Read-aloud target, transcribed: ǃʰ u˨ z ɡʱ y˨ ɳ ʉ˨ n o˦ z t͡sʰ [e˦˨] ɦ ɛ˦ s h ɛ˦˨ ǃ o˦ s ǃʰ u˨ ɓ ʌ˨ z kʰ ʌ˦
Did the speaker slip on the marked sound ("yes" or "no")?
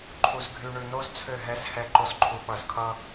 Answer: yes